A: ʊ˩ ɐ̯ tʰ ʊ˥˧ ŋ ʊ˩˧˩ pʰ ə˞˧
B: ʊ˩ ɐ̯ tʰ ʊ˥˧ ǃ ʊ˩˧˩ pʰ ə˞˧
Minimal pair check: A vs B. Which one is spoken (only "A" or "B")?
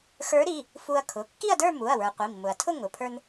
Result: A